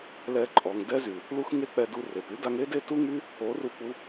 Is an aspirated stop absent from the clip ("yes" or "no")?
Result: yes